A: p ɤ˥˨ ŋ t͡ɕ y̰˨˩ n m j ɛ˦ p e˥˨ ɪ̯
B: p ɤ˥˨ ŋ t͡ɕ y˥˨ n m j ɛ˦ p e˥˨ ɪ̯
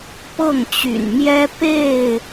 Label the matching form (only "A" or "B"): A